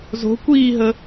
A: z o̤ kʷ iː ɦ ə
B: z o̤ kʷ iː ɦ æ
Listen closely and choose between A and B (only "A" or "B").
A